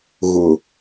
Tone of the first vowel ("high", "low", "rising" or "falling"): low